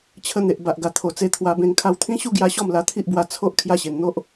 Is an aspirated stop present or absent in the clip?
present